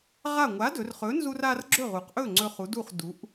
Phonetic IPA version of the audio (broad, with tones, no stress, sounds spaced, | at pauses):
ʁ a˥˨ ŋʷ a˨˥ d ɵ˩˧ r χ ɵ˨˥ n z u˦ r a˦ r ɡ͡ǁ ɵ˥˨ ʁ u˩˧ q ʔ ɵ˥˨ ŋ͡ǀ ɵ˦ χ u˨˥ d u˥˨ χ d u˩˧ ʔ